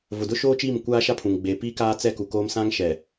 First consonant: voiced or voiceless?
voiced